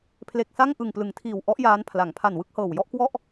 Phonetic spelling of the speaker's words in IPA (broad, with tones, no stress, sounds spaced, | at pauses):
pʰ l e˨˩ k̚ s a˥˩ ŋ ʔ ɯ˨˩ ŋ p l ɯ˩˦ ŋ tʰ iː˨˩ w ʔ ɔ˦˥ ʔ j aː˦˥ n pʰ l a˩˦ ŋ pʰ a˨˩ n w ɯ˥˩ k̚ h ɤː˨˩ w j ɔ˥˩ ʔ k w ɔ˥˩ ʔ